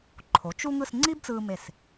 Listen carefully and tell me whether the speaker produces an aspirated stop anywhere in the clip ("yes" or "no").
yes